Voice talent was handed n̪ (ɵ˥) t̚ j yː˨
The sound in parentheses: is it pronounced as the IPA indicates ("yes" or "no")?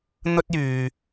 yes